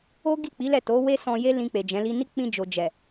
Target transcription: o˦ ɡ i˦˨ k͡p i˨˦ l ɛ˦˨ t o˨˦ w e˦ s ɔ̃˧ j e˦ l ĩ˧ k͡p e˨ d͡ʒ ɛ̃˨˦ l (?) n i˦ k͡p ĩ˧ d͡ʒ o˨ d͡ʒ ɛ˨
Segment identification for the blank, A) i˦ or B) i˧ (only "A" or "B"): A